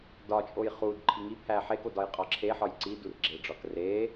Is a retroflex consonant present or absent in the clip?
present